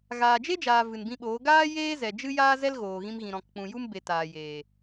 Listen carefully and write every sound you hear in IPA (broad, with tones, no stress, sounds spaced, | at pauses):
ɣ aː˨ d͡ʒ e˦ d͡ʒ aː˨ v ɨ˨ n b ĩ˧ ɓ oː˨˦ ɡ aː˦ j eː˦ z ɛ˨ d͡ʒ ɨ˦ j aː˦ z ɛ˦ l ɣ oː˨ ɣ ĩ˧ m ɣ ĩ˨ ɾ ɔ̃˨ k k͡p ũ˨ j u˦ m b e˨ t aː˨ j eː˨